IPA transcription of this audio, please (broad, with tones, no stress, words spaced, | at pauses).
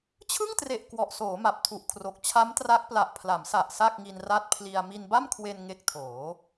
t͡ɕʰɯ˥˩ŋtre˨˩ʔ kwɔ˨˩ʔsoː˩˦ ma˨˩p̚tʰu˨˩ʔkʰro˨˩k̚ t͡ɕʰa˦˥mtra˦˥k̚ pla˨˩ʔpʰla˩˦msa˨˩ʔ sa˥˩k̚ŋi˧n ra˦˥t̚pʰli˧a̯ mi˧nba˥˩mkʰwe˧n ŋe˦˥k̚tʰoː˩˦